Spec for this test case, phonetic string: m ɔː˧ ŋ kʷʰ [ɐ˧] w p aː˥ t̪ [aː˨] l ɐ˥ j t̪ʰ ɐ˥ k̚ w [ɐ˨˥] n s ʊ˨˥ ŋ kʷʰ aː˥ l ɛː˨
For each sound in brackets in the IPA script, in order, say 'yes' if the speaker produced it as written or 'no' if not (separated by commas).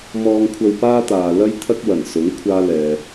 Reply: yes, yes, no